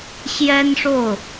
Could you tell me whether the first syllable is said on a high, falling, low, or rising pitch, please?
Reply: high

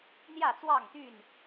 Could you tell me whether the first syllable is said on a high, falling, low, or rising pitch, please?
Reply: falling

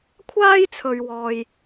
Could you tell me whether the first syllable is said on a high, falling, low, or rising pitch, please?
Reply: high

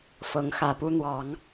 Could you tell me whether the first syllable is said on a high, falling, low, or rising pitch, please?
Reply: rising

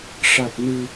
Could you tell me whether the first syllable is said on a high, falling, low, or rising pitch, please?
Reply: low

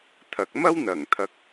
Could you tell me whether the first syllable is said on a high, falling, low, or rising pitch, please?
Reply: low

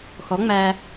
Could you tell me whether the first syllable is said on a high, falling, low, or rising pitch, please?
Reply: rising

